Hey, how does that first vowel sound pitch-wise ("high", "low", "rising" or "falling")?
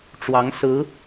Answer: rising